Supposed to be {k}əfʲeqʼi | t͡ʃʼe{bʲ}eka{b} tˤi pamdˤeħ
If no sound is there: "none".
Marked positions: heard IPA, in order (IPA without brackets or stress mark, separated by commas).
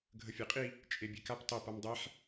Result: ɡʱ, bʲ, p